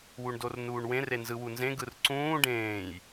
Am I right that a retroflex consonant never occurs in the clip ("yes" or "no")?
no